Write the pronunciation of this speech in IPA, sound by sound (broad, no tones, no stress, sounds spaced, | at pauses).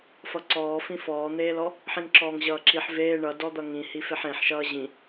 f ʌ ǀ ɔː f ĩ f ɔː n̪ eː l ɔ | ħ ĩ ŋ ǁ ɔː ŋ ʑ ʌː ǁ i ħ v eː ɳ ʌ d ɔ d̪ ʌ ŋ ĩ h i f e ħ ẽ ħ ʃ ʌː ʑ ĩ